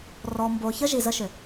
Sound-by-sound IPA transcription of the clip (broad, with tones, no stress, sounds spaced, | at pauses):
r ɔ˨ m b o˨ ç ə˦ ʒ i˨ z ə˦ ʃ ʏ˨